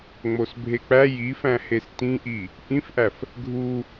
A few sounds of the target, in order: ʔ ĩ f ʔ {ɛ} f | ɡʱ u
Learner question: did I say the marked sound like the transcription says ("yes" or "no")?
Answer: no